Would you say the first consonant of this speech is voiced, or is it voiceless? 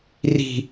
voiced